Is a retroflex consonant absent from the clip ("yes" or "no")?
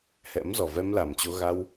yes